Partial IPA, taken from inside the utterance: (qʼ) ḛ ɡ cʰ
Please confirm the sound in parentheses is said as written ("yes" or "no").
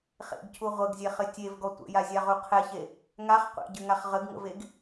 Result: no